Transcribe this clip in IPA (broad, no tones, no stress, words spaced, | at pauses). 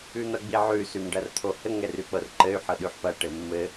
ʉn̪ɐɡ͡biʕʉ sʉmɖɐrt̪ʰohɘ ŋɛrʉk͡pɤrǃɘy̯ ħɤɗʉħpɐ ʈɘmːɘ